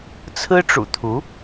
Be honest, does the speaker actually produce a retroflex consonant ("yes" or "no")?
yes